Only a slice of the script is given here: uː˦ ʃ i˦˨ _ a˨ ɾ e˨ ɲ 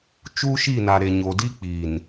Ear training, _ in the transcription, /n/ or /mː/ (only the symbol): n